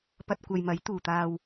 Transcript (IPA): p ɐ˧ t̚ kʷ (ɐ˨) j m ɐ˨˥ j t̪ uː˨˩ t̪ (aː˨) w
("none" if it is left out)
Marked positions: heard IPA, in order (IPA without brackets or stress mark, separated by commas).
ɐ˨, aː˨